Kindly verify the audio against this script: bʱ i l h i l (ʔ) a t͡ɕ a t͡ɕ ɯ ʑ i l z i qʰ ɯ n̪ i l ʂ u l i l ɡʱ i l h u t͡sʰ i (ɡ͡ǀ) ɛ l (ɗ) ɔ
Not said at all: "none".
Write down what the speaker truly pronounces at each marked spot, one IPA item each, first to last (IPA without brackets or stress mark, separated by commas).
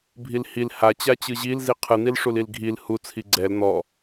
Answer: h, ɡ͡ǀ, n̪